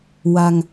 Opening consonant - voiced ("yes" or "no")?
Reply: yes